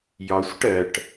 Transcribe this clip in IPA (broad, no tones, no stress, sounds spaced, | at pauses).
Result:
j ɒ sʷ ə ʈ ɜ ʈ